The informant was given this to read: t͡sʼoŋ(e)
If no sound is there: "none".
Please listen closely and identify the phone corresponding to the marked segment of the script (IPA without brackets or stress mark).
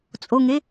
e